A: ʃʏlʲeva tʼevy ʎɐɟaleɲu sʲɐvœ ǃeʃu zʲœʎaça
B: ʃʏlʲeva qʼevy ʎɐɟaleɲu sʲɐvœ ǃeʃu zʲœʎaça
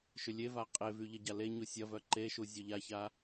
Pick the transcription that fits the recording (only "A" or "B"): B